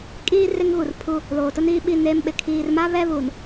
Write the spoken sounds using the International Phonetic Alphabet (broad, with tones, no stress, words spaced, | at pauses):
kʼiː˦ re˦ŋɣu˨rpʰu˦ | loː˨tʊ˦niː˦ɓi˦˨ neː˦mɓɪ˨ kʰiː˨rma˦ βɛ˦βuː˨n